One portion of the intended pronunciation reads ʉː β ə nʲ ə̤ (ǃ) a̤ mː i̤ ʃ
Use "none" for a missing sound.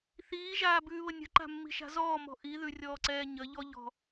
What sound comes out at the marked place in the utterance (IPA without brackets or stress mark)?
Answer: ǃ